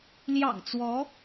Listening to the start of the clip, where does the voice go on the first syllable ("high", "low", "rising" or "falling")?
low